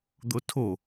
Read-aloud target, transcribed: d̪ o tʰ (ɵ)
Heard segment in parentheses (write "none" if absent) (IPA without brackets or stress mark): o